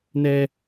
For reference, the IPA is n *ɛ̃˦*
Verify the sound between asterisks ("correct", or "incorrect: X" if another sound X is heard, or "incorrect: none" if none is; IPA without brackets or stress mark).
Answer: incorrect: ɛ˦